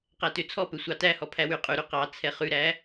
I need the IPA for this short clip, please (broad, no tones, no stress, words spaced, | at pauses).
qætøt͡sʰɔpø sʷɑtæhɔ pʰæwyqʼʉɾʉ qɑt͡sʰɛ χʉɾæ